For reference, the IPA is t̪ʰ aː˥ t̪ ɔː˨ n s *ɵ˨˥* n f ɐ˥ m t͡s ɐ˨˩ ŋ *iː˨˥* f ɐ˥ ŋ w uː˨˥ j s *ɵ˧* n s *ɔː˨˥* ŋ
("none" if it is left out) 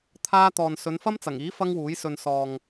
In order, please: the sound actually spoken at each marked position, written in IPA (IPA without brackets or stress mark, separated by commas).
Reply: ɵ˨˧, iː˨˥, ɵ˧, ɔː˨